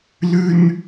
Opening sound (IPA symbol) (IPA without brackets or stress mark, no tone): l